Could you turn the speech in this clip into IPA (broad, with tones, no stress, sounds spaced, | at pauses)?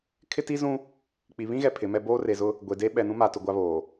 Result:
kʰ ɪ˦ t i˦ z ũ˦ | k͡p i˨ β ĩ˦ ɣ ɛ˨ pʰ ɪ˨˦ m ɛ˦ b oː˦ r e˨ z ʊ˦ | ɡʷ e˨ d e˦ ɓ ɛ˨ n ũ˦ m a˨ t ʊ˨ ɡʷ a˦ β oː˨